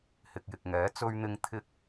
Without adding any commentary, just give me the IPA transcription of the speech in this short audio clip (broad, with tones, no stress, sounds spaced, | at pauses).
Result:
h ɪ˨ k̚ j ɪ˨ k̚ ŋ ɛː˨˥ t͡s ɵ˧ ɥ n̪ ɪ˧ ŋ t̪ʰ ɪ˧ k̚